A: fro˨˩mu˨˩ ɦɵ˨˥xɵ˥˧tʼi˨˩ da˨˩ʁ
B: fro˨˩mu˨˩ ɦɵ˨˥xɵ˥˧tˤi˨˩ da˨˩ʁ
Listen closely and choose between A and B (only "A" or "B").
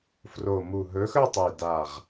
B